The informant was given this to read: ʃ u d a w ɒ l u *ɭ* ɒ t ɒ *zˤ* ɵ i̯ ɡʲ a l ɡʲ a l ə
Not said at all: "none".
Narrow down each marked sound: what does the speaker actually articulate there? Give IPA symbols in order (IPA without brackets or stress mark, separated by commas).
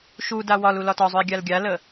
l, zˤ